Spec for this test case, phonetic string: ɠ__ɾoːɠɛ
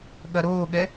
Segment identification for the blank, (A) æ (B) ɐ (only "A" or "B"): B